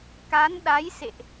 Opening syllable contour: rising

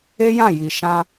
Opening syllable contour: high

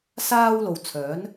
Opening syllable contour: high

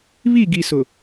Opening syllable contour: falling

